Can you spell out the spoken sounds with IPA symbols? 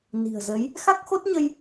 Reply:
ni̤˨˩ə̯zə˨˦j | xa˦˥k̚xo˦˥t̚ɲə˧j

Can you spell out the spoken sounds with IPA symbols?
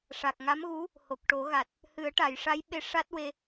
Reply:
ʂa˨˩k̚ ŋa˧˥mɣu˧˥ | ho˨˩k̚ʈo˨˩˦ɣa˨˩t̚ | hɨ˨˩˦ə̯ʈa˨˩˨j ʂa˧˥jɓe˧˥ ʂa˦˥t̚we˧

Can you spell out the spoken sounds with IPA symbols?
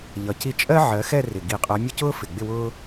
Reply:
ʎʌ˨˩ci˥˧ t͡ʃʼɜ˥ ʕɜ˨˦xɛ˥˧rɪ˨˩ ɡi˧˩˧qʼɜ˨˦ mʲʊ˥˧cʊː˥ fɪ˨˩ ɡ͡bɪ˥˧wʊː˥

